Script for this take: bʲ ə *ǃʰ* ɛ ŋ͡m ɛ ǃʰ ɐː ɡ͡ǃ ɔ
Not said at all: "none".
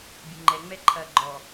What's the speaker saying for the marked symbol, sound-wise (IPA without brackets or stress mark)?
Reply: ŋ͡ǃ